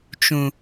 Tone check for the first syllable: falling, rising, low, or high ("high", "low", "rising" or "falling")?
low